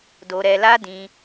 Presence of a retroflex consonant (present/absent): absent